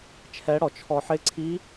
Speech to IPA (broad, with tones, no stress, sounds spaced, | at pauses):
t͡ʃʰ ɛ˦˥ ɽ ɔ˧ t͡ʃʰ ɔ˧ ħ ɪ˦˥ ǀʰ i˦˥